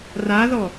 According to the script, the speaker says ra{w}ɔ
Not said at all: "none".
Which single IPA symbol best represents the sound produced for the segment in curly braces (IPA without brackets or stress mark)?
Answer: ð